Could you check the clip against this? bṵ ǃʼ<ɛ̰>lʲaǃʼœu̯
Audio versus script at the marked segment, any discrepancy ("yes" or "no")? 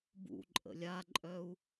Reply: yes